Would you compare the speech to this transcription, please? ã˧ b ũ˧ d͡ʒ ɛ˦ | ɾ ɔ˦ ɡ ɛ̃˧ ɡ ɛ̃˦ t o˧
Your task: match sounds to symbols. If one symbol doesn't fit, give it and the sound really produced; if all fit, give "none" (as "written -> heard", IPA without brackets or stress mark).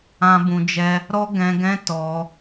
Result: o˧ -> ɔ˧